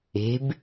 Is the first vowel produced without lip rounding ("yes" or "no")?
yes